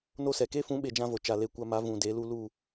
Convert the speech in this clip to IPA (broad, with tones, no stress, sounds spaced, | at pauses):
n o˦ s ɛ˨ k e˦ f ũ˨˦ ɓ e˨ d͡ʒ ã˦ v o˨ t͡ʃ a˨ l e˧ kʷ a˧ m a˨˦ v ũ˨ d e˨˦ l u˧ l u˦˨